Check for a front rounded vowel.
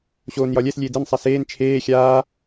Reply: absent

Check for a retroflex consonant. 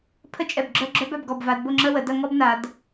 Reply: absent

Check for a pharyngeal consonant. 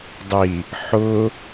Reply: present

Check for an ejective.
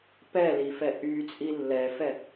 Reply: present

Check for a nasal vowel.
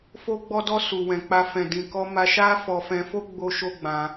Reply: present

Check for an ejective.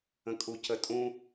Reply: present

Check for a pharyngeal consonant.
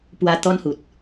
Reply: absent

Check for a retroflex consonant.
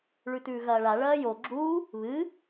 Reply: present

